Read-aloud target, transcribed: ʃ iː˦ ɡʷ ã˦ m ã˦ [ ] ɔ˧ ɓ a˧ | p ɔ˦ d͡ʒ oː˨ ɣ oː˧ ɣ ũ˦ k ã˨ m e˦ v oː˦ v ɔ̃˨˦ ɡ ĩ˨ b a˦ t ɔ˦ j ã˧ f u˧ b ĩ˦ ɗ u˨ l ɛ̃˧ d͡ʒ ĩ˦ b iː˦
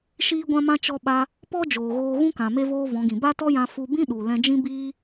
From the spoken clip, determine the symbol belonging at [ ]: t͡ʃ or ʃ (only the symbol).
t͡ʃ